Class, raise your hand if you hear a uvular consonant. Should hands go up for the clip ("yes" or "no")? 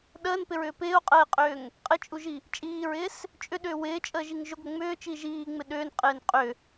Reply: yes